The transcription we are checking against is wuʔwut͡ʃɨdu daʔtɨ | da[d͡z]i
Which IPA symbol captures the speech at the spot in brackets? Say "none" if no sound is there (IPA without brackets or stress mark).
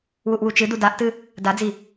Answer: d͡z